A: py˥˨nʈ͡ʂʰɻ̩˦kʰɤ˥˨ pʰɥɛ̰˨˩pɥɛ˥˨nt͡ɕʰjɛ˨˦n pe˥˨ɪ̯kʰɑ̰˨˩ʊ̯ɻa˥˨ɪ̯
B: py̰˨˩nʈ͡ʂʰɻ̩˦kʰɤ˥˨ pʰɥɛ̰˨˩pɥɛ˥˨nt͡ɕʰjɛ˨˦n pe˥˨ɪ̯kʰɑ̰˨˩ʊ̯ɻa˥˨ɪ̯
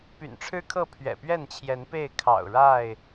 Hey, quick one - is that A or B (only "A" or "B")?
B